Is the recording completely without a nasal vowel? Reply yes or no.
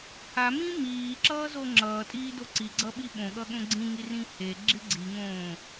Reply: no